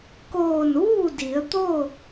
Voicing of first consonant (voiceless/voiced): voiceless